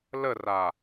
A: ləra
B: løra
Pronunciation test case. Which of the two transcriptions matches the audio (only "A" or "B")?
A